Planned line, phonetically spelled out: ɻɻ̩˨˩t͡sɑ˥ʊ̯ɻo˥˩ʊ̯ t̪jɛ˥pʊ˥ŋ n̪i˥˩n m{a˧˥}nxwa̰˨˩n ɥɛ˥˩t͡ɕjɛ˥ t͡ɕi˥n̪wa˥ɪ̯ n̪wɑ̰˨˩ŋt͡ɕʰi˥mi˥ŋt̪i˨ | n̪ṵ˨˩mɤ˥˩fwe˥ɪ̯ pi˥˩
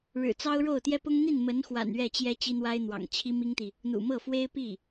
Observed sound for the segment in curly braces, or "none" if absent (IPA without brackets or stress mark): ə˧˥